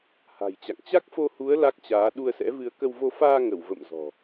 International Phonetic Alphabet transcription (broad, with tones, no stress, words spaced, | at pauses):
ha̤˨˩jt͡ɕa̰˧˨ŋ t͡ɕa˦˥k̚fo˧hu˨˦ə̯ la˦˥k̚t͡ɕaː˨˦ ɗu˧ə̯sɛ̰˧˥vɨ˧ə̯ kə˧wvo˧ faː˧ŋə˧˩w və̰˧˨m zɔ̤˨˩